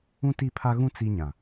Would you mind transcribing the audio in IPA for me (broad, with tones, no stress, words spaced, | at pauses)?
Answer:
ũ˦ti˦˨pʰa˦ɣũ˦ t͡si˦ɲã˨